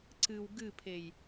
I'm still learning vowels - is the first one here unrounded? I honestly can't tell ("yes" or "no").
yes